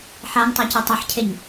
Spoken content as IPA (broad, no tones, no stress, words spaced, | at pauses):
ħaŋtˤacɛ tˤaħcʰeɲ